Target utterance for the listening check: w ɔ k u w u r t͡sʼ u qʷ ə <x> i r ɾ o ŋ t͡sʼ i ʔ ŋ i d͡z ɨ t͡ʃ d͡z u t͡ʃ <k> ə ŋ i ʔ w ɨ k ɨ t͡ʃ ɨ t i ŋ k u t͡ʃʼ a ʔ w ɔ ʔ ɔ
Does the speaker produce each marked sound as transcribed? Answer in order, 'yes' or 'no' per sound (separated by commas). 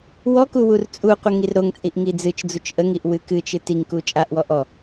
no, no